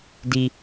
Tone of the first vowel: high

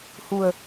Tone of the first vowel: low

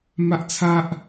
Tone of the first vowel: high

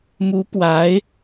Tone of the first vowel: rising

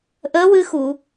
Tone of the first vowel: rising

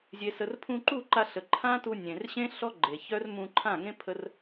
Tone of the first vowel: low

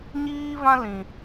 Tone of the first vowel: high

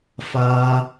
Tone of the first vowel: high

